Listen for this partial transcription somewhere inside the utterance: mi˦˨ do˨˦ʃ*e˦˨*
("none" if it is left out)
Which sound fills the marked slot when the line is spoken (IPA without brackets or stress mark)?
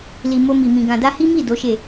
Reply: e˦˨